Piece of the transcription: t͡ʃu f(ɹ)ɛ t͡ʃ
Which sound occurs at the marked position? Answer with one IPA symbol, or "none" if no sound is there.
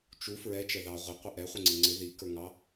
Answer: ɹ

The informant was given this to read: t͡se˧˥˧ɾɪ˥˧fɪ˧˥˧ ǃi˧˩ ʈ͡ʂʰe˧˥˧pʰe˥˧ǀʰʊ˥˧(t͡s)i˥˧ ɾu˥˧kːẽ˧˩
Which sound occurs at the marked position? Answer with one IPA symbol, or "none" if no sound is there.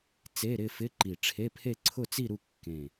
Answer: t͡s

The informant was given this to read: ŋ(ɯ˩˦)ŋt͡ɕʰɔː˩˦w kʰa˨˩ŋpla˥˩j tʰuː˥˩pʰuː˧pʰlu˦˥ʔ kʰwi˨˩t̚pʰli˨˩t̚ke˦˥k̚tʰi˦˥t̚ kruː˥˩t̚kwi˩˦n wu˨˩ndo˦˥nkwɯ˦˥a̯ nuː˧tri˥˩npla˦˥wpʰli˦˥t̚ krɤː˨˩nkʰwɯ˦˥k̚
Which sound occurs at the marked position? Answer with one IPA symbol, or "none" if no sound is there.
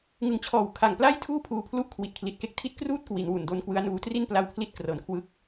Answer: ɯ˨˩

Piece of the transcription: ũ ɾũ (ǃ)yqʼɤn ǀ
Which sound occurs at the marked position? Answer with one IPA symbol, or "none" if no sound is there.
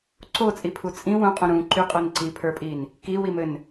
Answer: ǃ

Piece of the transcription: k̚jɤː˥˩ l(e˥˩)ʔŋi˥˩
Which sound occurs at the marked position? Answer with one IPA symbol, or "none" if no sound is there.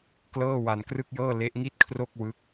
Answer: e˦˥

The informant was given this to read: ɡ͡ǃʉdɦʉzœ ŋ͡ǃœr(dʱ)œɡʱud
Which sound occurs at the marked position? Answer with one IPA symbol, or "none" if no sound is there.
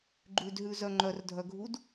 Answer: dʱ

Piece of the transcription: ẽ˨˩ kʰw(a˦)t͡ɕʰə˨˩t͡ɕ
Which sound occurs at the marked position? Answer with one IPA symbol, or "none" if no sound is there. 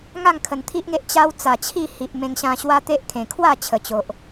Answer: a˥˧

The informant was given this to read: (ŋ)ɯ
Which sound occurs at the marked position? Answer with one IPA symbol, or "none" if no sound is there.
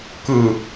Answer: k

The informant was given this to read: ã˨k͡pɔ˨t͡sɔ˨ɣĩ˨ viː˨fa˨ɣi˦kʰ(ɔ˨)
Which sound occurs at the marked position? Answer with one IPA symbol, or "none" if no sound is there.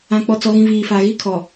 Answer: ɔ˨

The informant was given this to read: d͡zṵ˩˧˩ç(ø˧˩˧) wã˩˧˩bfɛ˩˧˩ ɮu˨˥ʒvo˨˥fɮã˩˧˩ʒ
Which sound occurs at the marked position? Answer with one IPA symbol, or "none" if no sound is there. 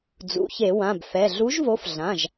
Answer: e˧˩˧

